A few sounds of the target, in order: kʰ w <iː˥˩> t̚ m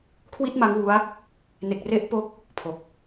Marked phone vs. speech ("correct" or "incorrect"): incorrect